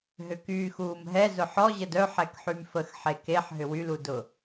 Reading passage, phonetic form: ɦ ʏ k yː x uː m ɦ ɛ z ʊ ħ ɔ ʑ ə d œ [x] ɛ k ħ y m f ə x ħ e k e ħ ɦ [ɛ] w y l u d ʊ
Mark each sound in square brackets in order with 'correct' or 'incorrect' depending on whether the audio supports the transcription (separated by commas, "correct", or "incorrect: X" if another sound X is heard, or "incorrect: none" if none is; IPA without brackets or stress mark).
incorrect: ħ, incorrect: ʏ